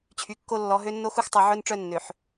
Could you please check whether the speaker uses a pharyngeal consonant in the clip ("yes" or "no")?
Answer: yes